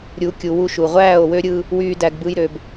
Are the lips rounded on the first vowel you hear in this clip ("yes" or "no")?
yes